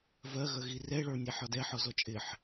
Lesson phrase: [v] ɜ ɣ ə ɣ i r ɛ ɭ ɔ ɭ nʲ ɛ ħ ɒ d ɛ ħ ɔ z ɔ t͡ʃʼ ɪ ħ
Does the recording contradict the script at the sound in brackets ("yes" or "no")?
no